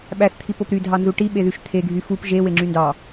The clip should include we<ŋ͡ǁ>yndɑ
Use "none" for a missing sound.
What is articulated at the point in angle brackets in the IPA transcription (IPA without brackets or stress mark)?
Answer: ŋ͡ǁ